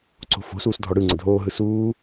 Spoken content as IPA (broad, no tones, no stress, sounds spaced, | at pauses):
ǀ o̤ f o̤ s uː s dʱ ɔ ɽ ɯ ŋ͡ǀ ə dʱ oː ɦ ɯ s uː